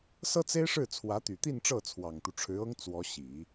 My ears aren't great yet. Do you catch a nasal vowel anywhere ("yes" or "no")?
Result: no